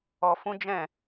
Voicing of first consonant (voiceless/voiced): voiceless